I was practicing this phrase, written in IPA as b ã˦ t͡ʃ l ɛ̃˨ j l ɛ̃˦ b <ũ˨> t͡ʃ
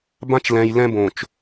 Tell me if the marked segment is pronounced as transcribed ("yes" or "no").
no